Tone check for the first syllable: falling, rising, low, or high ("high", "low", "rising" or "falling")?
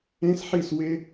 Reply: high